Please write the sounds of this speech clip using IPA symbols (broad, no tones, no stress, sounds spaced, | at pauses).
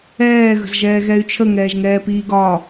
ɛː ɣ ə̤ z ʒ ɛː ɣ ɛ y̯ t͡ʃʰ ə ŋ ɛː ʒ ŋ ɛː p iː ɡ ɒː